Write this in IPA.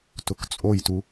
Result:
t ʊ k t͡sʼ o j t u

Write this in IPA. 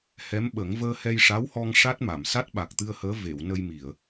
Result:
h ɛ˧˥ m ɓ ə˨˩˦ ŋ v əː˧ h ɛ˧ j ʂ a˧˥ w h ɔ˧ ŋ ʂ a˦˥ t̚ m a˨˩˨ m s a˦˥ t̚ ɓ a˨˩ k̚ t̪ ɨ˧ ə̯ h əː˧˥ v e˨˩˨ w n ə˧ j m i˨˩˨ ə̯

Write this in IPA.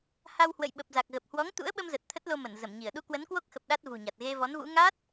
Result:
h a˧ w h w ə̰˧˨ j ɓ ə˨˩ p̚ z a˨˩ k̚ ɣ ə˨˩ p̚ h w ɔ˨˦ ŋ t̪ ṵ˧˥ ə̯ ɓ ə˧ m z ə˨˩ t̚ t̪ʰ ə˦˥ t̚ l o˧ m ə˧˩ n z ə˧˩ m ɲ i˧˩ ə̯ ɗ u˧ k w ə˨˦ n k w o˦˥ k̚ x ə˨˩ p̚ ɗ a˦˥ t̚ v ṳ˨˩ ɲ a˨˩ t̚ ɣ e˧ v ɔ˨˦ n v ṵ˧˥ ŋ a˦˥ t̚

